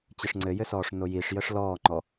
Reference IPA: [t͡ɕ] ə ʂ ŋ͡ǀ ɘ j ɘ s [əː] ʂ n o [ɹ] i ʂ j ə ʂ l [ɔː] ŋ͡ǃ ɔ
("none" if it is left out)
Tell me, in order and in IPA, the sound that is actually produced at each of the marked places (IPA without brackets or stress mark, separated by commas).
t͡ɕ, ɔː, j, ɔː